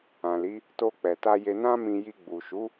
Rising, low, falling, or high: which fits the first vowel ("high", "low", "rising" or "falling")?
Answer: low